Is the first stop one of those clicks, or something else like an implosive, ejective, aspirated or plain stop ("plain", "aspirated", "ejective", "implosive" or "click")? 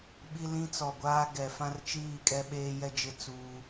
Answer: implosive